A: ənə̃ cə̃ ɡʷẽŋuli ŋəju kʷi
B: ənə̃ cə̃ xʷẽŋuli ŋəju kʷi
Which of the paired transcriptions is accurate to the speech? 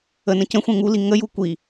B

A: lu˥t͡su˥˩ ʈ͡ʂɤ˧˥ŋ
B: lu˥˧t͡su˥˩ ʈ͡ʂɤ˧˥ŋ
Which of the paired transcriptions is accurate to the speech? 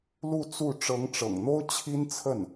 B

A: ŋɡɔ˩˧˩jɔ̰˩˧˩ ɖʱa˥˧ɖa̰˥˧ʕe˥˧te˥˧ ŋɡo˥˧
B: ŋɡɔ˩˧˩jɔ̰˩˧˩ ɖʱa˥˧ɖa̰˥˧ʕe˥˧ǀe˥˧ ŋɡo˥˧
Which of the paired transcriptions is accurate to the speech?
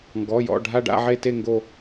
A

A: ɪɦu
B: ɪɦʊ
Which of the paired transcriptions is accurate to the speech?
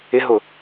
B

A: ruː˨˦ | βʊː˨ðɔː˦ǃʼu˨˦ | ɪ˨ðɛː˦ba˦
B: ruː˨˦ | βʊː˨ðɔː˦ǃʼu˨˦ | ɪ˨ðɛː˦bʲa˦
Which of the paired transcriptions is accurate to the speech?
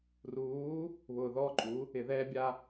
B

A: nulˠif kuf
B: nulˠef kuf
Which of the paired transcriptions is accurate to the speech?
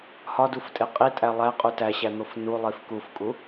A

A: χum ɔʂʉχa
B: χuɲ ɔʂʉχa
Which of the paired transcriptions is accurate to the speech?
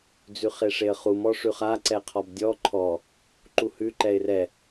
A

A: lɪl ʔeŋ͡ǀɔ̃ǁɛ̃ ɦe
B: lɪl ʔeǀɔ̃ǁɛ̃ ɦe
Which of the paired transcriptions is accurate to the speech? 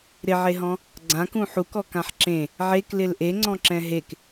A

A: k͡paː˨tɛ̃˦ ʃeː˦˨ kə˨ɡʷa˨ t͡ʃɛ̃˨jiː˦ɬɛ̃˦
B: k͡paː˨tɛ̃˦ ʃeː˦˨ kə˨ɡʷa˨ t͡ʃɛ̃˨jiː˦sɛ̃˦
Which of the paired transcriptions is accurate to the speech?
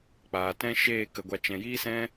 B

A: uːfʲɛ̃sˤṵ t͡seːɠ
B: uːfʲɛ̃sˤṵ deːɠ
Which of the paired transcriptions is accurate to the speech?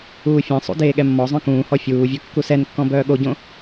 B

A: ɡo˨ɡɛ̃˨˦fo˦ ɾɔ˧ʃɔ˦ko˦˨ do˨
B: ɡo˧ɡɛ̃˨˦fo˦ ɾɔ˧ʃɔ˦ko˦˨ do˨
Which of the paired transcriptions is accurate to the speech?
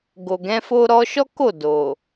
A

